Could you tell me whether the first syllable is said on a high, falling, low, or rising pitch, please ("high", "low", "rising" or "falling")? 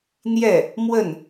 falling